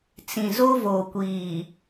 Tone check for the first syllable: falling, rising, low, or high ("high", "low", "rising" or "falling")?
low